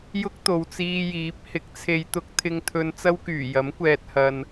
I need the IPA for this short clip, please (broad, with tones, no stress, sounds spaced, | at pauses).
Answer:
j ʊ˥ k̚ t̪ o˨ w t͡s iː˧ j iː˨˥ p̚ h ɪ˨˥ k̚ t͡sʰ e˨˧ j t̪ ʊ˨˥ k̚ t̪ʰ ɪ˧ ŋ t̪ʰ ɵ˧ n t͡s ɐ˥ w k yː˨˩ j ɐ˨˥ m kʷ ɛː˨ t̚ h ɐ˨ n